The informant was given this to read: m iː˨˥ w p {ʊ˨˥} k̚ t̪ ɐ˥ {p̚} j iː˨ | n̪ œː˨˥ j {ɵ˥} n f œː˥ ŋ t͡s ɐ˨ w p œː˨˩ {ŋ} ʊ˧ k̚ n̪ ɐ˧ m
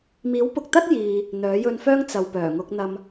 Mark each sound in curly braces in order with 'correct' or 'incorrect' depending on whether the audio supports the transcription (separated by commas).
incorrect, incorrect, incorrect, correct